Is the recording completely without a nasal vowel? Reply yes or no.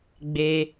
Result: yes